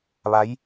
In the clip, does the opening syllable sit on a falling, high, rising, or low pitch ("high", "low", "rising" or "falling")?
rising